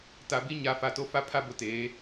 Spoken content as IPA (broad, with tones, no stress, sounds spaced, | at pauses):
t a˨ b i˦ ɲ a˨˦ f a˨ t o˦ f a˦ pʰ a˦ b ʊ˨ t eː˨˦